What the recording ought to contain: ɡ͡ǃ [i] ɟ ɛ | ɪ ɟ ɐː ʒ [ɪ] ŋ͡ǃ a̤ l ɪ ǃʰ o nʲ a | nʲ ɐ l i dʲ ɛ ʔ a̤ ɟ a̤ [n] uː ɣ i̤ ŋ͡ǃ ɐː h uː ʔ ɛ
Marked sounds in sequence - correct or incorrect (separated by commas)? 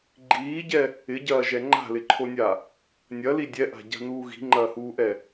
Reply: incorrect, incorrect, correct